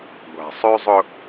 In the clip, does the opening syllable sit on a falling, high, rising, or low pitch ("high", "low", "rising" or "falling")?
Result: low